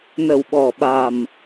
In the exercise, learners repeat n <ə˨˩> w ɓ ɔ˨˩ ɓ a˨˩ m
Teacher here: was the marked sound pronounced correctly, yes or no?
yes